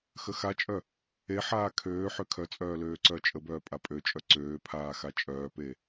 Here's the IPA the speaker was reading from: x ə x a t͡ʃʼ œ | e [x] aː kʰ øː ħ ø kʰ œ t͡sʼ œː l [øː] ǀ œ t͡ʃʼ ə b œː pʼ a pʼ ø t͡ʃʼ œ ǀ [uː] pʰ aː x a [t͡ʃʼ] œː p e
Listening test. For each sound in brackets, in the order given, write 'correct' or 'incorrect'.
incorrect: ħ, correct, incorrect: øː, correct

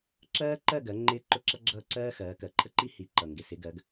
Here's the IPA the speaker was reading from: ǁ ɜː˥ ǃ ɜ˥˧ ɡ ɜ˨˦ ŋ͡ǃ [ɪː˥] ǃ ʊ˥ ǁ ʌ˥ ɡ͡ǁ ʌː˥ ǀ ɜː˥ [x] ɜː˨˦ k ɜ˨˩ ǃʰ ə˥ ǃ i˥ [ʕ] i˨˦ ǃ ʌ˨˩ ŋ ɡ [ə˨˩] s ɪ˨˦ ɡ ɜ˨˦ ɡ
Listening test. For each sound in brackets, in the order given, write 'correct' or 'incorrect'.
correct, correct, incorrect: h, incorrect: ɪ˨˩

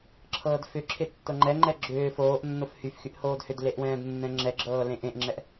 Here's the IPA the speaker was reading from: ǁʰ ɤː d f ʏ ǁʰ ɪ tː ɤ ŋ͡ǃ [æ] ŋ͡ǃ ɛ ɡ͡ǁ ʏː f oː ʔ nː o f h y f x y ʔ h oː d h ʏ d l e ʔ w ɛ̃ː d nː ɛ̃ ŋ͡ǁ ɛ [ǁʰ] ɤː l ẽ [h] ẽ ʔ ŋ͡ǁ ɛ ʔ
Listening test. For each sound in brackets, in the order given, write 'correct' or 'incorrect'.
incorrect: ɛ, incorrect: ɡ͡ǁ, incorrect: ʔ

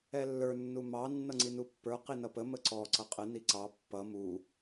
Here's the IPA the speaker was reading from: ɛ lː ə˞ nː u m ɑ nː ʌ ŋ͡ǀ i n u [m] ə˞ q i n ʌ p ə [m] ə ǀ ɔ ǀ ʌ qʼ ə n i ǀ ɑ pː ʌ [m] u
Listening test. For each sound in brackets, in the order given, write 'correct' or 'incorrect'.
incorrect: pː, correct, correct

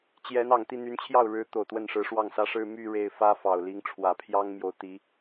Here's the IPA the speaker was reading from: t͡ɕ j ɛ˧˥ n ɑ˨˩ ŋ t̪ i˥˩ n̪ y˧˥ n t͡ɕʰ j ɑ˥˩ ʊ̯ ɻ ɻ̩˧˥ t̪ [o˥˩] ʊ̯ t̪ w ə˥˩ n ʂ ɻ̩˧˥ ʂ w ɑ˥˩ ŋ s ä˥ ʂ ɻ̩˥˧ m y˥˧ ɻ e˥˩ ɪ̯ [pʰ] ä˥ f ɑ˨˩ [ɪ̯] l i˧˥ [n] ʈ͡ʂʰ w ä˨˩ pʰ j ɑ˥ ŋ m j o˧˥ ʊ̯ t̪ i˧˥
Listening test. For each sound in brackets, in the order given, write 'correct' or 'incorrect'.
incorrect: o˨˩, incorrect: f, incorrect: ʊ̯, incorrect: ŋ

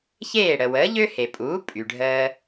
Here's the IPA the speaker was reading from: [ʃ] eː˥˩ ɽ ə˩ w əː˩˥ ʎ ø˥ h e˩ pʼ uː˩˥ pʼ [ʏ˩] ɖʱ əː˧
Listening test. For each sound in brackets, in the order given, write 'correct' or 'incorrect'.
incorrect: ç, incorrect: y˩

